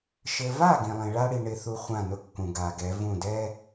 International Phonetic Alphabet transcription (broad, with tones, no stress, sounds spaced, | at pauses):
ʃ ɘ˨ v a˦˨ ɡ ĩ˨ lˠ ĩ˨ ɭ a˦ ɽ i˨ ɳ ɪ˦ θ u˦ χʷ ã˦˨ n ʊ˦ kː ũ˨ ɡ a˨ ɡ ɛ˨˦ v ũ˦˨ d ɛ˦